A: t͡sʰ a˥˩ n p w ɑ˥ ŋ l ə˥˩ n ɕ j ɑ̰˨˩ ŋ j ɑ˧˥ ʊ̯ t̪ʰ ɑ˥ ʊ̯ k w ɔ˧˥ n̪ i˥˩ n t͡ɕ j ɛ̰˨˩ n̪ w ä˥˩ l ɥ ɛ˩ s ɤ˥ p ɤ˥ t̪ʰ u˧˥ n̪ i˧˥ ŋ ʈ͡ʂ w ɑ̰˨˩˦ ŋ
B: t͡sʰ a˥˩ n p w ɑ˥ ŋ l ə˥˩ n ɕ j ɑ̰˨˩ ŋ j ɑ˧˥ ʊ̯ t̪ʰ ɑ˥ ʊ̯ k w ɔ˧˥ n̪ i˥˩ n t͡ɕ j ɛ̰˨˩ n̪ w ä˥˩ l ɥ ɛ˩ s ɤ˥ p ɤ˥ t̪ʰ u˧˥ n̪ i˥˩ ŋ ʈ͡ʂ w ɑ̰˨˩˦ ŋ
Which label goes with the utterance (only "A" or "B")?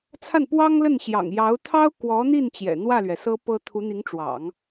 A